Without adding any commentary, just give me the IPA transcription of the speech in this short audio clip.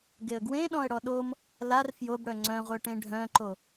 ɡeə̯ɡwẽɗɔ̃ə̯ ɽɔɗom | lar fjobɽœ ŋ͡ǀœ̃ʁʷœ ʈẽɖʱœ̃ǃo

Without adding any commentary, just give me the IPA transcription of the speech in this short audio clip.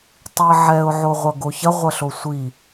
tˤiə̯ʕɛʊ̯ ʕoʁʷɐɡoçɐ ʁʷɐɬosʷi

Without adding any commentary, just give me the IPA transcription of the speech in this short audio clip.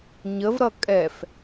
ɲəvɾʌ kʼɛf

